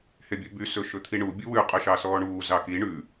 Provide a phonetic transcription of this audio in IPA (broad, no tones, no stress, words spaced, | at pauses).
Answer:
hebʲɵby sɵʃɵt̪ʰiɳu bʲuwʉ qʼœʃɑsɔːɳuː zɑki ɳʉ